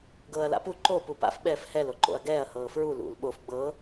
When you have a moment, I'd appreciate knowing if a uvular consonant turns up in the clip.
no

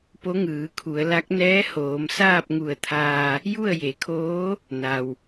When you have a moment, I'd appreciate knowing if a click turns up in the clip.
no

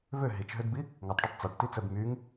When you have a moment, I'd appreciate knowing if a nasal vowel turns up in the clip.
no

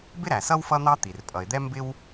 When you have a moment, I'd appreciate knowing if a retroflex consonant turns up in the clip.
no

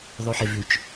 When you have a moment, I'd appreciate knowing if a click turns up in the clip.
no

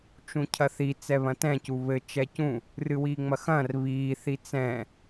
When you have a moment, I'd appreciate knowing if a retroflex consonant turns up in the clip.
no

